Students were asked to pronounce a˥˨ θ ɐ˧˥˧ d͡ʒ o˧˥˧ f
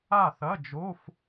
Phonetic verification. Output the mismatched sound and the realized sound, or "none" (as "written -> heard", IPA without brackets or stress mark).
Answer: none